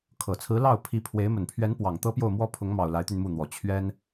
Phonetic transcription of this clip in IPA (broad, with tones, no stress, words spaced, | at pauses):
kʰɤ˨˩t͡sʰɹ̩˧˥ lɑ˥˩ʊ̯ pʰi˧˥pʰwe˧˥ɪ̯ mə˨˩npʰɥɛ˧˥npwɑ˨˩ŋ t̪ɤ˥pjo˥˩ʊ̯ mwɔ˥pʰʊ˧˥ŋmɑ˨˩ʊ̯ la˧˥ɪ̯t̪y˧nmu˥˩n̪wɔ˨˩ t͡ɕʰɥɛ˥n